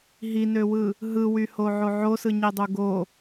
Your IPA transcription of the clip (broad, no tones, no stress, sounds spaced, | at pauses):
ɦ i n ø w ɯ | ɦ ɯ w y h o ʕ o ʕ o s ɯ ɲ i dˤ u ɡ o